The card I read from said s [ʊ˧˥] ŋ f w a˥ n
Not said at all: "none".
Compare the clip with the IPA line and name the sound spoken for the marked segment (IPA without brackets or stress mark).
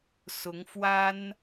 ʊ˧˥